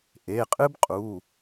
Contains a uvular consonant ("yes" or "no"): yes